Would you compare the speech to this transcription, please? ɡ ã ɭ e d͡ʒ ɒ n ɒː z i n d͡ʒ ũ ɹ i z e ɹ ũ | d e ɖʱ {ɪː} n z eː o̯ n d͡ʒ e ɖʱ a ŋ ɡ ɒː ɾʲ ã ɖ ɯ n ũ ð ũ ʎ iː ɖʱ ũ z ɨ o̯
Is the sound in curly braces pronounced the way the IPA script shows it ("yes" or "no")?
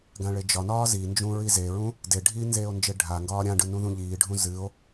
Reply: no